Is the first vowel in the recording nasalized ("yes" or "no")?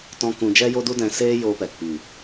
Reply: yes